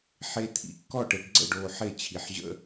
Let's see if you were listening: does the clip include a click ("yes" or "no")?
yes